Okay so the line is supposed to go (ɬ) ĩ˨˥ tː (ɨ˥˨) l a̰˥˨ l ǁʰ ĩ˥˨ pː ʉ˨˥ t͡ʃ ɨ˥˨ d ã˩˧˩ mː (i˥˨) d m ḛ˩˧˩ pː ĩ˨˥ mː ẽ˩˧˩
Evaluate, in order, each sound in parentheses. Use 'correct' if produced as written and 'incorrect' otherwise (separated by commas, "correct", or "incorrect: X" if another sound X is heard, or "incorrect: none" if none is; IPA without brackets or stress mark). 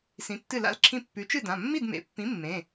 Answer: incorrect: s, correct, correct